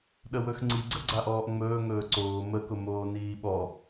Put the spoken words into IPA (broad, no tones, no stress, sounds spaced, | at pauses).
ɗ ə w ɵ x ŋ͡ǀ i ɡ͡ǀ ə ɡ͡ǀ a ʔ ɔː ʔ ŋ͡m ɵː ŋ ɵː ǀ oː m ə k ʊ m oː n iː ɓ ɔ